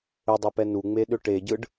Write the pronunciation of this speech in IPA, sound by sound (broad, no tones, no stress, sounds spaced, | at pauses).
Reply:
ʏ dˤ ɯ p ɛ n u ŋ͡m e ɗ ʏ ʈ e ɟ ɯ ɖ